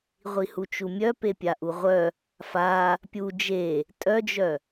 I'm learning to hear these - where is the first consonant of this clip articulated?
uvula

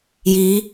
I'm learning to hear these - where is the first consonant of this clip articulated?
palate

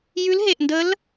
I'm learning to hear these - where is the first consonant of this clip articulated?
palate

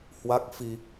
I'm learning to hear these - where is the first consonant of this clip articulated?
throat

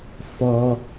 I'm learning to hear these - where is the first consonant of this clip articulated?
lips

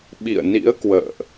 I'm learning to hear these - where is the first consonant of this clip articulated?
lips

